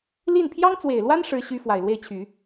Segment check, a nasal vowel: absent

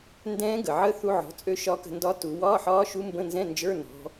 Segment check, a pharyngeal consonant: present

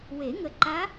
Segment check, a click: present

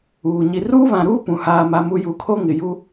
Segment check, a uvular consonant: absent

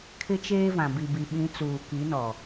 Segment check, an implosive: present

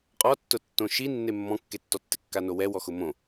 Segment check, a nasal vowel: present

